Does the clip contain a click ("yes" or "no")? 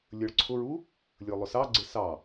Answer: yes